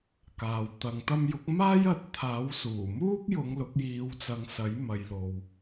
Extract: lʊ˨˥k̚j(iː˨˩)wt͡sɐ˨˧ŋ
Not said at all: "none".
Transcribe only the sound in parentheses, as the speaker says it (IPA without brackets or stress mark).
iː˨˧